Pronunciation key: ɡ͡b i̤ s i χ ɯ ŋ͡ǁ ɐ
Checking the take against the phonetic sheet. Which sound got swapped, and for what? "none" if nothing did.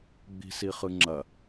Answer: none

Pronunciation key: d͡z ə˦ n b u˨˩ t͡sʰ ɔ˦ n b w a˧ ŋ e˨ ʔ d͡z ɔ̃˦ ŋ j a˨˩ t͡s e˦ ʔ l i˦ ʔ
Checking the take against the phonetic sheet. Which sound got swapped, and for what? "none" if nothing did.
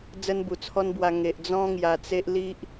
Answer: none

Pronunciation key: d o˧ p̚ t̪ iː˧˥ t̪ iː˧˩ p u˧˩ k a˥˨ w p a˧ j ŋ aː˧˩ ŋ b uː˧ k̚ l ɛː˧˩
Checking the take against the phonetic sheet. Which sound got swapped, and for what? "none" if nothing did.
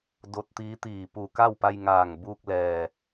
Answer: p̚ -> t̚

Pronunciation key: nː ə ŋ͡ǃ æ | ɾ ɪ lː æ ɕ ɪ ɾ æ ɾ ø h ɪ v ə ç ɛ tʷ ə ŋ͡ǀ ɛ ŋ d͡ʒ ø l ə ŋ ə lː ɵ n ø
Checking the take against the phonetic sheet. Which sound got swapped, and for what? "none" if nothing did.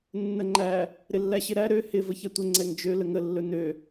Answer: none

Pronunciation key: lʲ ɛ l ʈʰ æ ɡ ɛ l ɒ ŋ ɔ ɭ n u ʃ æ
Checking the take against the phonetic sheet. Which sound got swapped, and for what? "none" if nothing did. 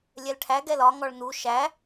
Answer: none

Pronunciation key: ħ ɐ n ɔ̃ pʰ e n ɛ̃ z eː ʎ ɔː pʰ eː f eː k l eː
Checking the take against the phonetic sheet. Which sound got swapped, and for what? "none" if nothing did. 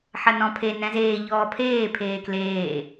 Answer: f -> pʰ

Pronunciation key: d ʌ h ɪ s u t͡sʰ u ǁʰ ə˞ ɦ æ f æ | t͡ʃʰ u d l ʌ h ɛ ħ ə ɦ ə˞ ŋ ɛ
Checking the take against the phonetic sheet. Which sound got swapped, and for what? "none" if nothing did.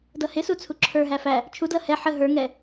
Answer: none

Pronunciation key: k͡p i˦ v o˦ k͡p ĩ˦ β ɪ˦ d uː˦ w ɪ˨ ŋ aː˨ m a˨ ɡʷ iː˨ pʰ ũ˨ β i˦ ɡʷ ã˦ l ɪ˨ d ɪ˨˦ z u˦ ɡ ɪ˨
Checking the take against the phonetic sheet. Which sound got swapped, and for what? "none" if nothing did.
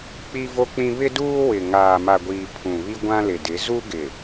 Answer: none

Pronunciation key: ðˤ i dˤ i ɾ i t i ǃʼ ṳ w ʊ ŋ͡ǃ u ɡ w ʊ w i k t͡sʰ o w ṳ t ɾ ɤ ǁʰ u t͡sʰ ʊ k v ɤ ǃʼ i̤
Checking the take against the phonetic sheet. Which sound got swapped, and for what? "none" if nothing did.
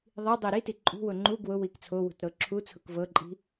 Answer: none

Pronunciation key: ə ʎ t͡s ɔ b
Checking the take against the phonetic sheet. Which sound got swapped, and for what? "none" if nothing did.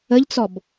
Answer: none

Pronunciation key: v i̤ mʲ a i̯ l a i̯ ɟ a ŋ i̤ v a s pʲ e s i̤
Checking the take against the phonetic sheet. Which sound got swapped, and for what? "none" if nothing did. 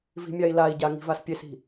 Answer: none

